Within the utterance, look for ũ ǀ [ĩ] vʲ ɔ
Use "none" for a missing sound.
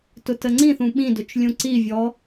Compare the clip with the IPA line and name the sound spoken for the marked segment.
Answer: i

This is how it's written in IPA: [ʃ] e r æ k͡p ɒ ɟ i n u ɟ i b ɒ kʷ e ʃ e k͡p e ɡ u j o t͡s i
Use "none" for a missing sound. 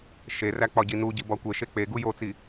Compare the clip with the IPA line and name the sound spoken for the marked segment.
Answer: ʃ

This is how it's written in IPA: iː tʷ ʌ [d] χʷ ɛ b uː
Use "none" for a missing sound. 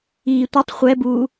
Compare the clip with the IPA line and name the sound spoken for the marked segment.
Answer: tˤ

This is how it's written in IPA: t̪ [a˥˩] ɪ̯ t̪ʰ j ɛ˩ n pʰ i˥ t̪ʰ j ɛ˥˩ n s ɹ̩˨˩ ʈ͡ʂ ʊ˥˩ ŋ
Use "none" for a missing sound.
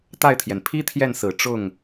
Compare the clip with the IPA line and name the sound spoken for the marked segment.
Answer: a˥˩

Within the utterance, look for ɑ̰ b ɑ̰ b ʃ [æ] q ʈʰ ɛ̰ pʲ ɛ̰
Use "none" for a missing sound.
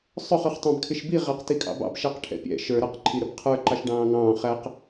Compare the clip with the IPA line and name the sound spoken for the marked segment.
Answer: æ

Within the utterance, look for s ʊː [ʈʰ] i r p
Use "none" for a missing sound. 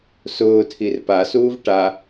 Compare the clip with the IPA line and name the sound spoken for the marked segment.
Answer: tʰ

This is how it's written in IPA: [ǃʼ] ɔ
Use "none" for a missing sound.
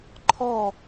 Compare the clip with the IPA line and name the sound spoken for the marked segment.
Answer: ǃʰ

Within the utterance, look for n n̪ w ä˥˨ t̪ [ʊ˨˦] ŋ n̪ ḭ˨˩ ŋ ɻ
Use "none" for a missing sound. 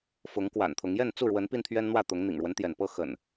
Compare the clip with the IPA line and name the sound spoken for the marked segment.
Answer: ʊ˨˦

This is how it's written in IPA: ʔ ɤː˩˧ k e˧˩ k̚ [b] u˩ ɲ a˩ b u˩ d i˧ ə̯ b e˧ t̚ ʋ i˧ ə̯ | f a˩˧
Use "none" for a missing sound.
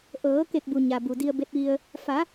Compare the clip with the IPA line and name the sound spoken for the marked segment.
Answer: b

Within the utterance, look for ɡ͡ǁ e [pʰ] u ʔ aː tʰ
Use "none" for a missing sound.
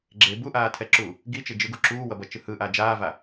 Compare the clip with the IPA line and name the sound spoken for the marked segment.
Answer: b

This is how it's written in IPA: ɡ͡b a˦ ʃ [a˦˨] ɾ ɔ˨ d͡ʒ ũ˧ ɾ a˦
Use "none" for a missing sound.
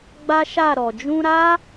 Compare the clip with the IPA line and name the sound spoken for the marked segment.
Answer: a˦˨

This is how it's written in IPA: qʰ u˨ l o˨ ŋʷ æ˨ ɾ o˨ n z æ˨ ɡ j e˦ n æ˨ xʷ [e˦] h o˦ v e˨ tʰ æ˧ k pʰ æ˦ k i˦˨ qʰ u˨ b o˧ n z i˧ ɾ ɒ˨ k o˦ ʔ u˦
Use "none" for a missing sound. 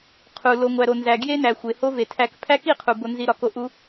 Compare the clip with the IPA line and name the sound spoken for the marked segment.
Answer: e˨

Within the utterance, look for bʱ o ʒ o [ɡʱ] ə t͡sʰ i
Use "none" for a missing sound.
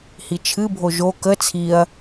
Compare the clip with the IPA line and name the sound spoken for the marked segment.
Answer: k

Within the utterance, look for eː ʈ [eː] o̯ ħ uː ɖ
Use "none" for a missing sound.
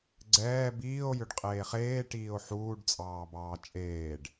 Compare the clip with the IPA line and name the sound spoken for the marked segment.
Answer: iː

